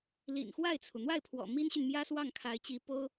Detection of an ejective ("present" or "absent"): absent